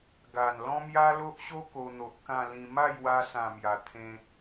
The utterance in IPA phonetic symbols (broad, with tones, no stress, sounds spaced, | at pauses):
ɡ a˨˩ n l ɔ̃˦ m j a˦ l o˦ ʔ ɕ o˦ k o˧ n̪ o˨ ʔ k ã˥˧ l ĩ˧ m a˥˧ j w a˧ s ã˨˩ m j a˨˩ t̪ʰ ẽ˧